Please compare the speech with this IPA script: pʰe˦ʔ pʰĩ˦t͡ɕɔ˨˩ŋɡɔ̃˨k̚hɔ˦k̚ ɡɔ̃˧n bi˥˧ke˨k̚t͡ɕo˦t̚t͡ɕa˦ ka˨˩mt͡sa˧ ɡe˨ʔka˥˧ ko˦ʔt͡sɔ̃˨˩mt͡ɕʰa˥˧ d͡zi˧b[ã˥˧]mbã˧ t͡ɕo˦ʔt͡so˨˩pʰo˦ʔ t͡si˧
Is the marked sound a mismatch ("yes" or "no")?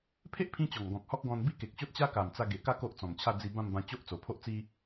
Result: no